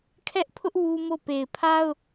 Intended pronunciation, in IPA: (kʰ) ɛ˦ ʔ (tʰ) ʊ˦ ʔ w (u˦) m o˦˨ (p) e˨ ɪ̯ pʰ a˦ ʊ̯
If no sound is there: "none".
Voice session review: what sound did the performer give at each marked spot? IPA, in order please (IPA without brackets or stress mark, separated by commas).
kʰ, pʰ, u˦, p